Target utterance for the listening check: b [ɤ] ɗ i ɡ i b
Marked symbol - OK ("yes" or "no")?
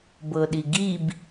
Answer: yes